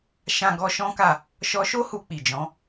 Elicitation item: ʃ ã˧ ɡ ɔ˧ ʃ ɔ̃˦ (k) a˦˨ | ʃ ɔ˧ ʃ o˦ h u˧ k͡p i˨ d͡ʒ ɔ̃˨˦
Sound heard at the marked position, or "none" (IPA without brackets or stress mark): k